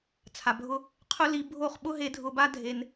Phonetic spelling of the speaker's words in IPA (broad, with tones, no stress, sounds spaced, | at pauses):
t͡sʰ a˨ bʱ ʊ˦ | qʰ ʊ˦ l i˧ bʱ o˦˨ χ ɓ ʊ˦ ɦ e˧ dʱ ʊ˧ b a˦ dʱ e˧ n